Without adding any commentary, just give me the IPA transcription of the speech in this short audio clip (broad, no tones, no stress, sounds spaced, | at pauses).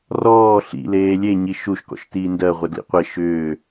r ɔː ɬ ḭ l eː lʲ e ɲ i ʃ u ʃ k ɔ̰ ʃ t iː n d ɜ ʁʷ e d l ḭ qʷ e ʃ ʏː